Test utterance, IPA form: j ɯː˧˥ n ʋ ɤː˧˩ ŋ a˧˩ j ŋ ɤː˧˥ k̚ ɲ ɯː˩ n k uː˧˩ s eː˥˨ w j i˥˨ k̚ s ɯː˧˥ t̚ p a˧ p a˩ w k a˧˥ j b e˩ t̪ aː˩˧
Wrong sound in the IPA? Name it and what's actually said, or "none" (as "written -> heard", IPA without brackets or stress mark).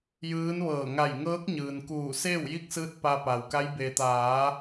none